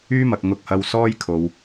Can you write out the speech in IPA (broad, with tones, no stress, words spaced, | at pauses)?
yː˥mɐ˨k̚ ŋʊ˨k̚hɐ˨w sɔː˥jkʰo˨w